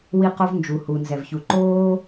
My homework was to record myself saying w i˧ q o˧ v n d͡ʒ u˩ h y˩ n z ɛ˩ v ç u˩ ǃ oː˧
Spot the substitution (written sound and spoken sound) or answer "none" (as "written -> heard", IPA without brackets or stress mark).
y˩ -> u˩